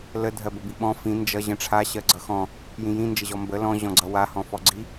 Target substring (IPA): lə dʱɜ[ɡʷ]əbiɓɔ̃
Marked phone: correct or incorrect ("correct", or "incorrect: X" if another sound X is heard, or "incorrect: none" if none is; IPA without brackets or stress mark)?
incorrect: b